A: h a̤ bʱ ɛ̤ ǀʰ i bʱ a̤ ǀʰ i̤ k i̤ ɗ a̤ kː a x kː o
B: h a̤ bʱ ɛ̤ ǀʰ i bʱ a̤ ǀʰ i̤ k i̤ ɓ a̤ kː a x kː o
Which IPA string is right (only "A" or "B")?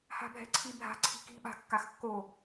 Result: B